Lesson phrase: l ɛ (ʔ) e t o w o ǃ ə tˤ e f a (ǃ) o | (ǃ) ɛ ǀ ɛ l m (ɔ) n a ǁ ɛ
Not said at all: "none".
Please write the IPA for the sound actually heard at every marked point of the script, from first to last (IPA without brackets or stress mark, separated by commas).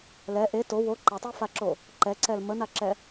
ʔ, ǁ, ǃ, ə